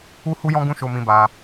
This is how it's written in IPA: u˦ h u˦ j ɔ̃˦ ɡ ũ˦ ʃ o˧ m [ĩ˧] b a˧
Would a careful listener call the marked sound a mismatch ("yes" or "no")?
no